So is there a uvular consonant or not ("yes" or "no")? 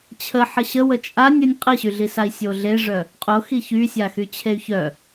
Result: yes